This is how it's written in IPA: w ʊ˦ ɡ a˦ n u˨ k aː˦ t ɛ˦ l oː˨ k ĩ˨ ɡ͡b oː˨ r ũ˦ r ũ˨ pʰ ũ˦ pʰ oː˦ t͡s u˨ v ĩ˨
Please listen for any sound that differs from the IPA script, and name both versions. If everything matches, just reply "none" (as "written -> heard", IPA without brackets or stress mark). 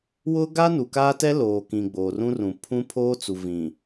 none